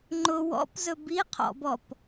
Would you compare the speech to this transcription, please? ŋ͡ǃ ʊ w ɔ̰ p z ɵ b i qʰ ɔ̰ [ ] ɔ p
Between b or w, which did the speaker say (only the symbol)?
b